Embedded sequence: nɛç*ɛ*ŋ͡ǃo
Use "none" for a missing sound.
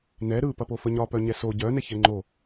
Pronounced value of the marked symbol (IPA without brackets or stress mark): ɛ